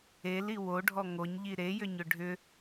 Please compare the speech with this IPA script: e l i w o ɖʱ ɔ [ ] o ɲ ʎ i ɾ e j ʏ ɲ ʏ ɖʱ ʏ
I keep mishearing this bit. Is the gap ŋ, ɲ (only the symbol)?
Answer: ŋ